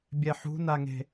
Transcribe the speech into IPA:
bʲ ɛ ħ ṳ n a ŋ e̤

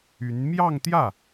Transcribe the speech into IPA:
y˧˥ n m j ɑ˥˧ ŋ t̪ j ä˥˩

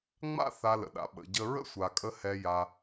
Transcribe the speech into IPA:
ŋ͡m a̰˥ θ a˧ l ə̰˩ ɗ a̰˩ ɓ ə̰˩ ɟ ə˧ ɹ ə̰˥ sʷ a˩ kʼ ə˧ h ɛ˧ j a˧

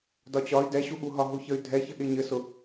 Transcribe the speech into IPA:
d ɒ t͡ɕ ɒ y̯ d ɛ ɕ u ɠ u ɦ ɒ ɦ u ç ə y̯ dʱ ɛ ç ɘ ɠ e ɲ ɘ s ʊ

